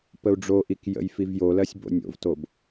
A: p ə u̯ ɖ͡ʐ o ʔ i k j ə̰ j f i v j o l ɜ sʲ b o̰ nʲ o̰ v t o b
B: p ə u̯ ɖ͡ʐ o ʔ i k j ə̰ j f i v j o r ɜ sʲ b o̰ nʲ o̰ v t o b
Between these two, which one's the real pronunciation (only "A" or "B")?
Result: A